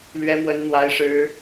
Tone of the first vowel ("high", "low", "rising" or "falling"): high